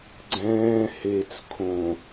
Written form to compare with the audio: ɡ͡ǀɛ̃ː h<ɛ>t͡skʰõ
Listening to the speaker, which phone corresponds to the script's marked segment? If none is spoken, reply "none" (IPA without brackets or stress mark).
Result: e